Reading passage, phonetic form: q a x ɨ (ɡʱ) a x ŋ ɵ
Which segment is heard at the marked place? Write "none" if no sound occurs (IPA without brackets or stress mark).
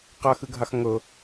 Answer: ɡʱ